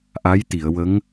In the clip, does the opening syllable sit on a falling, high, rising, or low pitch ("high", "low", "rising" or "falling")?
rising